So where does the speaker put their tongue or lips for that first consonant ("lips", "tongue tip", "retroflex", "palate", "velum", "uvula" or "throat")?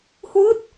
throat